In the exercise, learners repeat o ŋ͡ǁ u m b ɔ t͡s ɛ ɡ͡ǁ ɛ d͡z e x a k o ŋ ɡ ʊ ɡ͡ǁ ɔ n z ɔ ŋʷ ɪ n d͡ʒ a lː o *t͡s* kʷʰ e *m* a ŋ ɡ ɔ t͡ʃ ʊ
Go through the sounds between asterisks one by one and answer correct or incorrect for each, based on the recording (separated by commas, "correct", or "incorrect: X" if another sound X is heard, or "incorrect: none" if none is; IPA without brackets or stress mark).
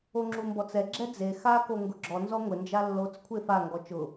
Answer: correct, incorrect: f